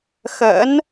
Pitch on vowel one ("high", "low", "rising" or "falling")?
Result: rising